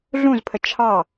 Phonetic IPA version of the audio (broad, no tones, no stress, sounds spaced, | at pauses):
ɮ ũ z pʰ ə t͡ʃʰ ɑ